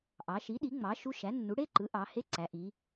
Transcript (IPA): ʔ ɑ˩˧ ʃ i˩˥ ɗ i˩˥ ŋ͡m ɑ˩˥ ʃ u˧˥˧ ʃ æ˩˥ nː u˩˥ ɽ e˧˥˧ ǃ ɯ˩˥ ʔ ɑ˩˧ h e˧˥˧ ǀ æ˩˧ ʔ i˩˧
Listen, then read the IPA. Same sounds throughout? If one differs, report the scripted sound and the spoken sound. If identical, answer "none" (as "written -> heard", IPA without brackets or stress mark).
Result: none